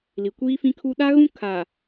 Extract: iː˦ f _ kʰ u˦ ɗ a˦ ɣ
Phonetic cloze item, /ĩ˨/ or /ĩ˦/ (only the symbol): ĩ˦